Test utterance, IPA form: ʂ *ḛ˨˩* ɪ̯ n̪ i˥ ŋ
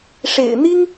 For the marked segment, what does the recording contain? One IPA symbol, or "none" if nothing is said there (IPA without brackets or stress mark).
ḛ˨˩